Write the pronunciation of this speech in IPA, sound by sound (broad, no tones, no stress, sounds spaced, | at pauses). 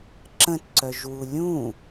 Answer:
ǁ ə̃ t ǀ œ ʒ w u lʲ ũ